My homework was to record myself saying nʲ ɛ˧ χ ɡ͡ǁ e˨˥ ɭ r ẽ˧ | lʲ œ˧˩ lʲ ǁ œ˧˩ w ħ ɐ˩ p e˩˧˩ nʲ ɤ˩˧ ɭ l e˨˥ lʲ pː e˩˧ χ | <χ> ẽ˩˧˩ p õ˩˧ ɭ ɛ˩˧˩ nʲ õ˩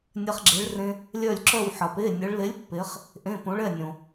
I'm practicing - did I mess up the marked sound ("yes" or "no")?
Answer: yes